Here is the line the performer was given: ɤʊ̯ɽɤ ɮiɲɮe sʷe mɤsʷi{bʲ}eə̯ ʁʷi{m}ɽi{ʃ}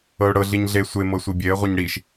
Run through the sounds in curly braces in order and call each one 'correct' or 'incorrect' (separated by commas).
correct, incorrect, correct